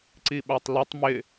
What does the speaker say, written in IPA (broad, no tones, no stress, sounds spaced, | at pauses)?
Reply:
ǀ i ɓ a tˤ l ʊ tˤ m ɪ